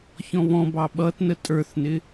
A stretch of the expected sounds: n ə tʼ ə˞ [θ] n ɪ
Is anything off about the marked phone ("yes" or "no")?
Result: no